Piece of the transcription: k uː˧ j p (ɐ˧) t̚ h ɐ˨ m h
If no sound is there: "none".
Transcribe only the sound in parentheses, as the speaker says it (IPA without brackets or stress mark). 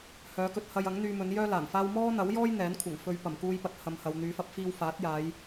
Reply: ɐ˨